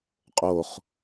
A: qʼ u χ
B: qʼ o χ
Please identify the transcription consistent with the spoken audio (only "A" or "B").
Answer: B